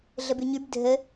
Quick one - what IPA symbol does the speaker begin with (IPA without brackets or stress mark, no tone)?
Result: ɮ